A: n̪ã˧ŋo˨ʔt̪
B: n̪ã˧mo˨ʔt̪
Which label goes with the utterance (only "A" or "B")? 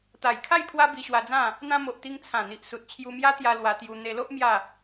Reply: B